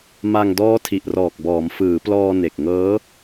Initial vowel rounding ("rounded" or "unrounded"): unrounded